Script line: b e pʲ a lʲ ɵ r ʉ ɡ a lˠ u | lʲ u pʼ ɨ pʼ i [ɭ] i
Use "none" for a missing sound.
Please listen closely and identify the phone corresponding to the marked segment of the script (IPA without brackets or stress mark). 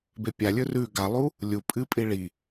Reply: ɭ